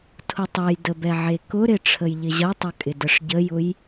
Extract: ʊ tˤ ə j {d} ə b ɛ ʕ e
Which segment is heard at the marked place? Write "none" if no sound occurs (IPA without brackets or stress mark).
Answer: d